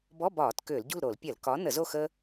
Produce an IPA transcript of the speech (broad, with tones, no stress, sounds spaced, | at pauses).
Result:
b ɔ˧˥˧ b ɒː˧˩˧ t k ʏː˧˩˧ l ɟ ṳ˥˨ l ɾ o˧˩˧ l pʲ ɐ˧˩˧ l k ɒ˨˥ n ə˧˩˧ z o˥˨ x ə˥